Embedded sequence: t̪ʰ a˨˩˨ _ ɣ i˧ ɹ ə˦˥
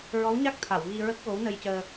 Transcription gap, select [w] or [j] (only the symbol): w